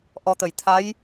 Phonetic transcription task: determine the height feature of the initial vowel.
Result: mid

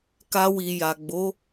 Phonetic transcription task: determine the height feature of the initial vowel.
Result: low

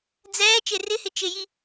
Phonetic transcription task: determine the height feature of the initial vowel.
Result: mid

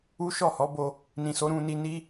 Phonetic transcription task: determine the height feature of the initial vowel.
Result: high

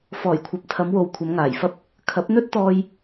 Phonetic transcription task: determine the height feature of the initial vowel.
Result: mid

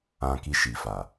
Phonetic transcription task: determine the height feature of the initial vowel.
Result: low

